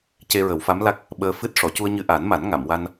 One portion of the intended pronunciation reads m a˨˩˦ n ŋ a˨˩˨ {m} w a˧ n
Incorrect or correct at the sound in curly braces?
correct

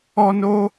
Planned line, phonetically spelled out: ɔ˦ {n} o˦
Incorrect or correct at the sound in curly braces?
correct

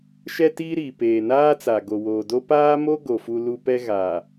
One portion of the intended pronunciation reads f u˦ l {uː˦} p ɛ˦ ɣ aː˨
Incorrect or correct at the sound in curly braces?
incorrect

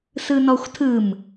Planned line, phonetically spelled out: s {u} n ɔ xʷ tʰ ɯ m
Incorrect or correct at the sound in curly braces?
incorrect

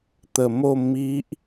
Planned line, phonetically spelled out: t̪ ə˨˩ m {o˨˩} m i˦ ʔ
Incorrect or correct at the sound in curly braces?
incorrect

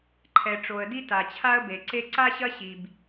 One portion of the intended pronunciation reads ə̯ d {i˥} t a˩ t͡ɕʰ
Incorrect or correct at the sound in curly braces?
correct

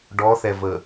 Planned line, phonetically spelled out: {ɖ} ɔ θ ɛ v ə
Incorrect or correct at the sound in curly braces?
correct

